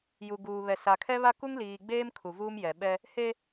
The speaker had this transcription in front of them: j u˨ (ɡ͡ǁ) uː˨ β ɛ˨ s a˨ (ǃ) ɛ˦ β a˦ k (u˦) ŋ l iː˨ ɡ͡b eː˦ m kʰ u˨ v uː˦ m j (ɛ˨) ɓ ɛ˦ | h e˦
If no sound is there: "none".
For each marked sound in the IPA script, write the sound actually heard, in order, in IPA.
ɡ, kʰ, u˦, ɛ˨

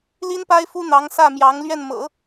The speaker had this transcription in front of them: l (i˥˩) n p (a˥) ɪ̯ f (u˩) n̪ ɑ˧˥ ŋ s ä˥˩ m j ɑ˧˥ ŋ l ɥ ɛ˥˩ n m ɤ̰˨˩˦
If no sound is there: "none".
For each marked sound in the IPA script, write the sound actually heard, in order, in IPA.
i˥, a˥, u˥

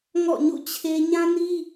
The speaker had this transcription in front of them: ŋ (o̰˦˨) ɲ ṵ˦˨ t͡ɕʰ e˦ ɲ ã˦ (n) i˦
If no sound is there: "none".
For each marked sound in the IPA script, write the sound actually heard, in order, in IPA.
ɔ̰˦˨, n

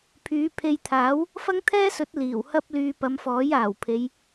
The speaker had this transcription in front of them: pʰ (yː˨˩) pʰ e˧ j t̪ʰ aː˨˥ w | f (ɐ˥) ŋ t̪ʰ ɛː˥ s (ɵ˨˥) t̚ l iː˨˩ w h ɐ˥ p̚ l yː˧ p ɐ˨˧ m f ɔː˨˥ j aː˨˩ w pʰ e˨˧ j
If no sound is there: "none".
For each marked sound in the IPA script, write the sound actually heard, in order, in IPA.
yː˨˧, ɐ˥, ɵ˨˥

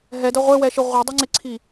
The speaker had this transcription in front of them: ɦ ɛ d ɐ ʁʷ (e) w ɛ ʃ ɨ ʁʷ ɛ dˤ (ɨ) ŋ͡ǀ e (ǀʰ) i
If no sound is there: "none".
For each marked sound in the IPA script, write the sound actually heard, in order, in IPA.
e, i, ǀʰ

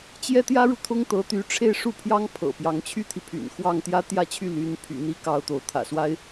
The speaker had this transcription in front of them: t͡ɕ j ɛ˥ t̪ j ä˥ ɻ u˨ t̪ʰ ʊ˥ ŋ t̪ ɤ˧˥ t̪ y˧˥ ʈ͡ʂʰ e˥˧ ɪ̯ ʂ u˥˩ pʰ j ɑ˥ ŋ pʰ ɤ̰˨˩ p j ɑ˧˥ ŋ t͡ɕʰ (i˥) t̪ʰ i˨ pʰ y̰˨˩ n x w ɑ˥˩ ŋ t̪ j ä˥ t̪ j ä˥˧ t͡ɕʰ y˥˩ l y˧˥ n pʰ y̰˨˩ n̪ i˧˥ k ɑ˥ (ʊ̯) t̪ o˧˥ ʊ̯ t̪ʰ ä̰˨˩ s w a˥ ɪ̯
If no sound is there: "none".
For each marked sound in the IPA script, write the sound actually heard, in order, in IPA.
y˥, ʊ̯

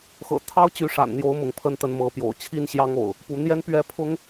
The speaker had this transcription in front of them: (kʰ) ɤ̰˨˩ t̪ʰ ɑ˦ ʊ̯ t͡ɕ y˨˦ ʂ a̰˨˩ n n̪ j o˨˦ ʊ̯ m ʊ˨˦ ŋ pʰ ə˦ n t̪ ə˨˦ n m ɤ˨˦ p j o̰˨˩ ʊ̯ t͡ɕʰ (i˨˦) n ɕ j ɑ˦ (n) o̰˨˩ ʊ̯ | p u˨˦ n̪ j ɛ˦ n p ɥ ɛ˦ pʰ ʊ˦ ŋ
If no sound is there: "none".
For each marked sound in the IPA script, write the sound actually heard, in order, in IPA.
x, i˦, ŋ

